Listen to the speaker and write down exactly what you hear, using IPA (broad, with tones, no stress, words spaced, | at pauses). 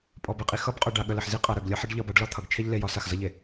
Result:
pʼɔ˨be˨qʼi˨ xʌ˦bqʼœ˨ ɖa˨ɠə˨lə˨ħ zi˦qʼa˨ ɾœ˨ɡlʲʌ˦ħə˦ɖʎʌ˦˨b a˦ɖlɒ˦ t̪ʰʌ˨ɡ t͡ʃʰe˦ʎ le˦˨jɒ˦ sa˨xzʌ˦ʎe˨